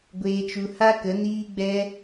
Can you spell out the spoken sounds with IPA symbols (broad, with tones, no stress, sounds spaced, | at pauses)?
ɡʷ eː˧ t͡ʃ u˧ h a˦ k ə˨˦ n iː˦ ɡ͡b ɛ˦